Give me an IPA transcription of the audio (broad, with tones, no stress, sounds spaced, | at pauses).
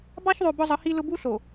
b ɑ˦ ç ðˤ o˨ b ʊ˦ zˤ ə˨˦ h i˦ l ʊ˦ b u˦ ɬ o˨